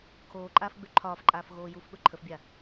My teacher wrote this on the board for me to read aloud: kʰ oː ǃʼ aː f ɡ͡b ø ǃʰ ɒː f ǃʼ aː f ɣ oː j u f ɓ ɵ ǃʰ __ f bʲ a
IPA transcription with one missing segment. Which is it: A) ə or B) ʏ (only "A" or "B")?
A